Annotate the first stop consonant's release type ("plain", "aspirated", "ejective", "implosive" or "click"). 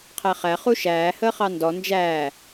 aspirated